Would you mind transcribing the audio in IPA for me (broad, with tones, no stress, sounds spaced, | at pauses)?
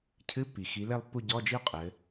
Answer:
cʰ ɨ˧˥˧ pː i˩ x i˩˧ l e˦˨ lˠ pː u˦˨ ɟ ɔ˧˥˧ d͡ʒ i˥ ʊ̯ qʼ ɘ˩˧